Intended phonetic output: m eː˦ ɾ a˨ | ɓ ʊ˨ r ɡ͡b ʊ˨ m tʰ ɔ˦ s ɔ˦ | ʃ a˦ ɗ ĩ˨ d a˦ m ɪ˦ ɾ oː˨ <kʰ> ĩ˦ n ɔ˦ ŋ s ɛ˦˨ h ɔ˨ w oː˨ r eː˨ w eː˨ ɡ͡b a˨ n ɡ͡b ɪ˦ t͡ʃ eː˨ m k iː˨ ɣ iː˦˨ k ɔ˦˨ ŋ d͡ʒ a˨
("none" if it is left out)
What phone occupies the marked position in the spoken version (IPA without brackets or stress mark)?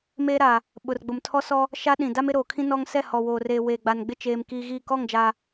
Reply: kʰ